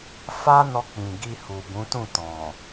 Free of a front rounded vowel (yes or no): yes